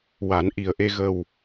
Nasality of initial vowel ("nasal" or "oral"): oral